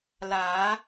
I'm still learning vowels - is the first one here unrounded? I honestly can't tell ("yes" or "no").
yes